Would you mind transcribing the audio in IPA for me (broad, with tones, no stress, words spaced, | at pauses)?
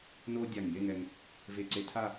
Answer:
no˥dʲa˧˩ŋje˥˧ŋɛ˧ŋ | ve˧ ǀe˧tʰa˥˧